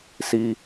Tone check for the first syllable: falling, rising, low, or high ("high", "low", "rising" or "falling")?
low